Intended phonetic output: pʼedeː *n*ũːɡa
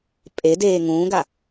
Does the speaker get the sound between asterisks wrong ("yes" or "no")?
yes